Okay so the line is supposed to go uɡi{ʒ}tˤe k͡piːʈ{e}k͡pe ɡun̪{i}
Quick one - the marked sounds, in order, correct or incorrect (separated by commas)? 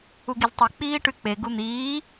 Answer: incorrect, incorrect, incorrect